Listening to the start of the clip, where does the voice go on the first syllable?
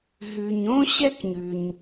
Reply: low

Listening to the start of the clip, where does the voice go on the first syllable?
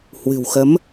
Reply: low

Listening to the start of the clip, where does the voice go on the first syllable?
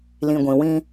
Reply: low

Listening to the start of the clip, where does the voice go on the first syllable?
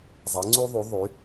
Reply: rising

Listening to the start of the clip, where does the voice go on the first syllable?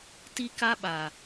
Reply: high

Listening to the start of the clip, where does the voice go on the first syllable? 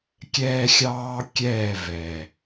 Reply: high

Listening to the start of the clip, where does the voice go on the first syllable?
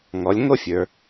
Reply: rising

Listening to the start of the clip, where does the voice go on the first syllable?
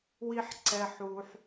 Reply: low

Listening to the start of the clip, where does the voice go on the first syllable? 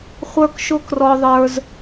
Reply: high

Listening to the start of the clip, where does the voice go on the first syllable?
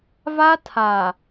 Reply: high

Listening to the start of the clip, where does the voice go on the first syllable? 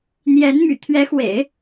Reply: rising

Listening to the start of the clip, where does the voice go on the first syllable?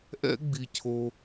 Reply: high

